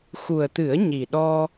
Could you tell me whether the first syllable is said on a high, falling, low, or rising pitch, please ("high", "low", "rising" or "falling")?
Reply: low